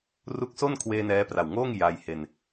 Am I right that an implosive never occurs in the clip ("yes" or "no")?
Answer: yes